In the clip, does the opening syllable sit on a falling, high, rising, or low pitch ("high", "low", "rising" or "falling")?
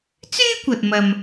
high